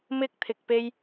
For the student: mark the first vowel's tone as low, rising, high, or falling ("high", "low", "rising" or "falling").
high